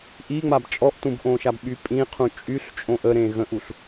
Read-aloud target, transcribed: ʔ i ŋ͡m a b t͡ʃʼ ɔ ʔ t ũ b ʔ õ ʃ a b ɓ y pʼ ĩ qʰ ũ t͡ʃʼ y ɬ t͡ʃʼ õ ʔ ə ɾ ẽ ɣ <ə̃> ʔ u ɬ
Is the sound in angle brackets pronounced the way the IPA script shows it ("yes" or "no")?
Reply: yes